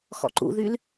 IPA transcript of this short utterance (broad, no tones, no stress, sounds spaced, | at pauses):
x ɔ̰ ǃ ṵ ð y l